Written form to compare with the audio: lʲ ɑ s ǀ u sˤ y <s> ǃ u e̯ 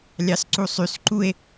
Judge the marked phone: correct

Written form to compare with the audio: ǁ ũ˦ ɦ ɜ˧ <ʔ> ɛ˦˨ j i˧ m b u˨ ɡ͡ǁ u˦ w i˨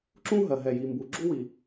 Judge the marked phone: incorrect: ɦ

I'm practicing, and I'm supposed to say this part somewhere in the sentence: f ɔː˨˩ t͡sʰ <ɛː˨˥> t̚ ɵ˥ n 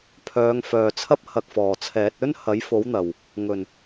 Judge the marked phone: correct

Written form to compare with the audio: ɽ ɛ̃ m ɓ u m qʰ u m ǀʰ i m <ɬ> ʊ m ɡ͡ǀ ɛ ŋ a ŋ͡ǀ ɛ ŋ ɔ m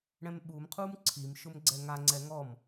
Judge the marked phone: incorrect: ʃ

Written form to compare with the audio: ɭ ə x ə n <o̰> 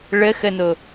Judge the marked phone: incorrect: o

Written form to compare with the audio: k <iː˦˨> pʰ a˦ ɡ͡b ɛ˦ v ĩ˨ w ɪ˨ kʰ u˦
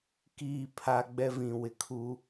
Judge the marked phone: correct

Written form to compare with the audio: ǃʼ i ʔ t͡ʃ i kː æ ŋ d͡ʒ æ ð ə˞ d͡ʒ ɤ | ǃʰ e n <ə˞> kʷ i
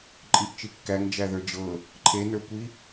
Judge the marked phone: correct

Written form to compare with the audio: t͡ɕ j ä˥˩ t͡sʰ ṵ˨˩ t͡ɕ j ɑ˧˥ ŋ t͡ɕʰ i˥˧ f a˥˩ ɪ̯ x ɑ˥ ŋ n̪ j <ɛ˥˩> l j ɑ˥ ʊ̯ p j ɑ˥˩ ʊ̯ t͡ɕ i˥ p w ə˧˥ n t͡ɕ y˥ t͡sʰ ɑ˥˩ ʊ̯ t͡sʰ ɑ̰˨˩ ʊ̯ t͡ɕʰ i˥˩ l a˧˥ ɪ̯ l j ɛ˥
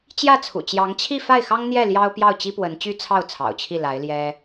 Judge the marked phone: correct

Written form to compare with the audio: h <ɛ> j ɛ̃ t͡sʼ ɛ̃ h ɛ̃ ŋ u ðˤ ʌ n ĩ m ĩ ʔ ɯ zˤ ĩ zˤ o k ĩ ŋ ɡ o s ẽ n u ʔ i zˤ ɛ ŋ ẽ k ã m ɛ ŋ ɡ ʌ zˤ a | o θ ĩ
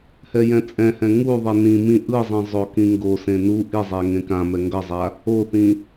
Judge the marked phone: correct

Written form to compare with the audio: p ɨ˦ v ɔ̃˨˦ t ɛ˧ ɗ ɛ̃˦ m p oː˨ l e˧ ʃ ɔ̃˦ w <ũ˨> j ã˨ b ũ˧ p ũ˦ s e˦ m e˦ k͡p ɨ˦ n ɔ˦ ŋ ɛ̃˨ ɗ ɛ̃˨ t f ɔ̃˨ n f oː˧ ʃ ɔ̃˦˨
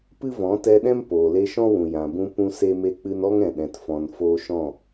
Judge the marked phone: correct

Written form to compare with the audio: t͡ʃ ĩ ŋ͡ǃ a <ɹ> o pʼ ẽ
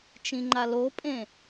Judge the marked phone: incorrect: l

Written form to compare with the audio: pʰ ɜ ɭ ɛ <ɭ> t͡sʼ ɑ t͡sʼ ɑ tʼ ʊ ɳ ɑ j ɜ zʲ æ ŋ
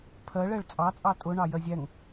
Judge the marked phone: correct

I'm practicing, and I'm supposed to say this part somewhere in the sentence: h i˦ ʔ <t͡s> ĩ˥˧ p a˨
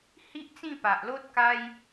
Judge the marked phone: correct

